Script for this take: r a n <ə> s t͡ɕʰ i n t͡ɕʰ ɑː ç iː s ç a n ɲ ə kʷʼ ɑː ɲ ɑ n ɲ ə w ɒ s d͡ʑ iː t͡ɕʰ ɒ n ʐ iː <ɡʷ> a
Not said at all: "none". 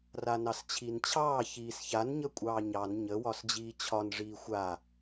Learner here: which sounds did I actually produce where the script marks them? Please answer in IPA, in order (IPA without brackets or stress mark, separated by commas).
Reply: ɑ, xʷ